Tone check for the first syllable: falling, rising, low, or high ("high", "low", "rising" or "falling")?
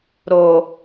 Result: low